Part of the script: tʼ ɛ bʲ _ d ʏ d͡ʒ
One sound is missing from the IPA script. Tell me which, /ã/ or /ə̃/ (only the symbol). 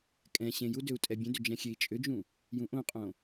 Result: ə̃